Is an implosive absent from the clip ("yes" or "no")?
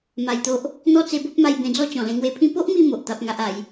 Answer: yes